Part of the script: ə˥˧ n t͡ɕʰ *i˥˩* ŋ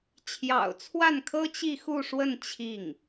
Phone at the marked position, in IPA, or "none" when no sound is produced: i˥˩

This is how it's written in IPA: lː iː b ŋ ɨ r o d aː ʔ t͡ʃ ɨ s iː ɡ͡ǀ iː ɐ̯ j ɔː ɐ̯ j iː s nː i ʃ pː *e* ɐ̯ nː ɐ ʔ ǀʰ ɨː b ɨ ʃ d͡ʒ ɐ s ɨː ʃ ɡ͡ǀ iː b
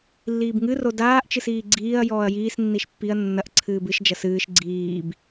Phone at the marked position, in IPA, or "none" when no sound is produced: i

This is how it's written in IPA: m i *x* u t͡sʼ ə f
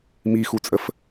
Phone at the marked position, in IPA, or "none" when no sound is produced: x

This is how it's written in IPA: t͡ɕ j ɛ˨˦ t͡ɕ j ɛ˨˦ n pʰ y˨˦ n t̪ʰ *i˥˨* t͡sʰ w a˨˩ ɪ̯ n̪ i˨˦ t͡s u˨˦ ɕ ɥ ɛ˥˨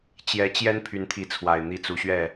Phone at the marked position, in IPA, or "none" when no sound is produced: i˨˦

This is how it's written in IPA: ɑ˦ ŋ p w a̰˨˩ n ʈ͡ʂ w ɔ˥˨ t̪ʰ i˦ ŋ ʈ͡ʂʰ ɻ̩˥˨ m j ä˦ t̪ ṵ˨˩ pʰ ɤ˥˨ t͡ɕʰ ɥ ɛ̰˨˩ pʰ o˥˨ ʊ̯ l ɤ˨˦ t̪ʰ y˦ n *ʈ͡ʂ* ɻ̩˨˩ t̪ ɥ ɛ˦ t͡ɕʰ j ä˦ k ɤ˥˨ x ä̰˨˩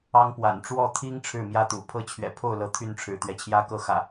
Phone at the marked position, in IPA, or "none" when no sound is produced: ʈ͡ʂʰ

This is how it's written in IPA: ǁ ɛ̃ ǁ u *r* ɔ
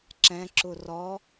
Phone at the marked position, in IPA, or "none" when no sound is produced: r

